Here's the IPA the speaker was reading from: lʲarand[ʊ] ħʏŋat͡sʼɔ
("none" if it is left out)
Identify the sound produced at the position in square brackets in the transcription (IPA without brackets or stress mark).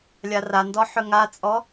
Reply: ɔ